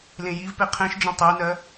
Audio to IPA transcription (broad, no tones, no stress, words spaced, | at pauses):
lẽjivpe qʰẽʃd͡ʒẽ tˤenɜ